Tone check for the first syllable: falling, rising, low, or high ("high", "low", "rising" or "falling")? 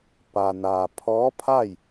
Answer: low